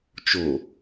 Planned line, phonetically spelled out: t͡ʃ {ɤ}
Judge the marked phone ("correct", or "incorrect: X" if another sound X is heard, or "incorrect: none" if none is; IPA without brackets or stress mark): incorrect: o